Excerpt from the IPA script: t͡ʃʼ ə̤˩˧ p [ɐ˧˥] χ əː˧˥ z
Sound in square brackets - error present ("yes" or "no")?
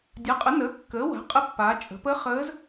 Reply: yes